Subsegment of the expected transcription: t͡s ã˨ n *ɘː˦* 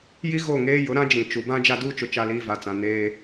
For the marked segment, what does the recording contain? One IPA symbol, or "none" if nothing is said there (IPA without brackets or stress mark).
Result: eː˦